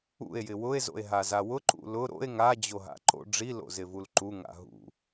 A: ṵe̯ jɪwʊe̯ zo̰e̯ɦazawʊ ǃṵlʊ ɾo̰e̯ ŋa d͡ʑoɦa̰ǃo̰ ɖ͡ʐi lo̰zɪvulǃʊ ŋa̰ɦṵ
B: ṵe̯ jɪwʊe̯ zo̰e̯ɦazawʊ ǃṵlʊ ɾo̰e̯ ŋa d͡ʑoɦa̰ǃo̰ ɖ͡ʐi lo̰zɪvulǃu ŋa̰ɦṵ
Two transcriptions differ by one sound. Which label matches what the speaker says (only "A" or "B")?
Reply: B